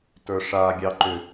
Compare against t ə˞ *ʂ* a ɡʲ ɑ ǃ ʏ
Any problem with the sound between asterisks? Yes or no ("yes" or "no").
no